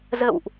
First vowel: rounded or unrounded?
unrounded